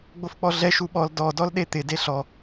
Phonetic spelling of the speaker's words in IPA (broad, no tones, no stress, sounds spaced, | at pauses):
ɡ͡b o f k͡p ɔ ɮ ɛ ʃ u ɓ ɔ l d ɔ d ɔ l ɗ e t̪ ɪ d e ɬ ɔ